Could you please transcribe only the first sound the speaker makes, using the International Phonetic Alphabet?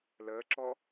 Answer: l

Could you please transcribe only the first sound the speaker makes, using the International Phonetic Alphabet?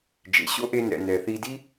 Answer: d͡ʒ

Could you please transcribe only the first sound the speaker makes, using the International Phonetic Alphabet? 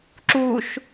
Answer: ǁ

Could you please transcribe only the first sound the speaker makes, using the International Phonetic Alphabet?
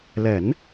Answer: l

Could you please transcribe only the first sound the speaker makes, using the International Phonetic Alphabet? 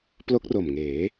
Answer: p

